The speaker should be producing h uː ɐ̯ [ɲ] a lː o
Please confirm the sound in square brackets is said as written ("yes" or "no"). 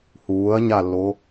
yes